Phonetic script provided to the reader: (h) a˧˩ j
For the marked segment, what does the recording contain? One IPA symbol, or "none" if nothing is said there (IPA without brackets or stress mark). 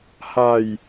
h